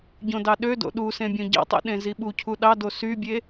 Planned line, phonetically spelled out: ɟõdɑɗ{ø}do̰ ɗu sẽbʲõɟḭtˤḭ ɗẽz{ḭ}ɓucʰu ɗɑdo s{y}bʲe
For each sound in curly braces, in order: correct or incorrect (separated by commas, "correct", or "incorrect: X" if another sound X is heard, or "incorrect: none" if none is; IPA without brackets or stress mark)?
correct, incorrect: i, correct